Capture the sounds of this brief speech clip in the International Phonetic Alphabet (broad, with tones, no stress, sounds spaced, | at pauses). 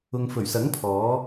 ʊ˧ ŋ f ɵ˨˩ ɥ s ɐ˨˥ ŋ pʰ ɔː˨˥